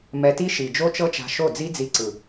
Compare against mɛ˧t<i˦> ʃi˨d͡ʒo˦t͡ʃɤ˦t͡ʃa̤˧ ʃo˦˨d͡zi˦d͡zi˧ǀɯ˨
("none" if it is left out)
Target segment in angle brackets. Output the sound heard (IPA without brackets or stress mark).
i˦